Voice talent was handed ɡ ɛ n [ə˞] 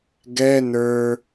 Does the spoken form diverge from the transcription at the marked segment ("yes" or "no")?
no